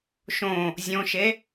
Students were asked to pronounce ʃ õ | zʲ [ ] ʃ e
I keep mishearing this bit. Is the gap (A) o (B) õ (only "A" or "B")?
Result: B